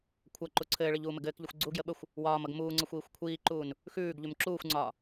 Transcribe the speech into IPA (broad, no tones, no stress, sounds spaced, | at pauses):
kʷʰ ʌ ǃ u ǀʰ ɘː ɭ ɘ ʎ uː m ɘ ɡ ɘː k ʎ ɘ xʷ ɡ͡ǀ u ɡ j ə ɓ ə xʷ | w ɒː m ʌ ɡ m uː ŋ͡ǀ ʌ xʷ iː xʷ kʷʰ iː ǃ uː n | x ʉː ɡ ʎ ʉ m ǁ uː xʷ ŋ͡ǀ ɒː